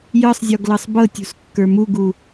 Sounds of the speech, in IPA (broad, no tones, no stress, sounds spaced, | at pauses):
j ɤ sˤ zʲ ɔ ɡ l ɤ sˤ b ɤ tʲ ṳ s kː ə˞ m u ɡ u